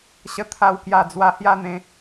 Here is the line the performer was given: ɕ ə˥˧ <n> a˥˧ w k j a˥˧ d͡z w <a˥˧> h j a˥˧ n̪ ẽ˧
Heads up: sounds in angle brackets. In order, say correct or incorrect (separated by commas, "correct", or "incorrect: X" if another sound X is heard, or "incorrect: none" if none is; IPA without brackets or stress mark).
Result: incorrect: t̪ʰ, correct